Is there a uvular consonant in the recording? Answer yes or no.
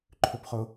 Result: yes